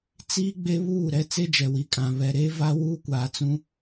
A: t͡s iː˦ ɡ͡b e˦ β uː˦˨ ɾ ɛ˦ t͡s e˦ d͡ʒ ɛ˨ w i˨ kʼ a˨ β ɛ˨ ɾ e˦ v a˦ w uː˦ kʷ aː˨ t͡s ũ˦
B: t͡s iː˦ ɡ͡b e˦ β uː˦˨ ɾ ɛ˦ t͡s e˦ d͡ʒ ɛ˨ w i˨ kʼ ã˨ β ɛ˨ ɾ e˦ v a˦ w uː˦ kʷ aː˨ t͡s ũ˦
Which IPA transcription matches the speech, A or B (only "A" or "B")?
B